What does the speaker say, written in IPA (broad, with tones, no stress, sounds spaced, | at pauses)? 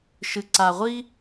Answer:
ʃ ɨ˥ ǀ a˥ ʁʷ i˥